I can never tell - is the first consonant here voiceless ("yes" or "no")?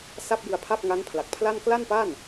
yes